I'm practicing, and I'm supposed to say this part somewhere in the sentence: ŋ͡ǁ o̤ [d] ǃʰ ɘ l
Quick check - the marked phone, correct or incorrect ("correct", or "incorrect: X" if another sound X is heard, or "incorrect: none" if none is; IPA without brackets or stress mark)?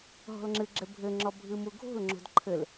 correct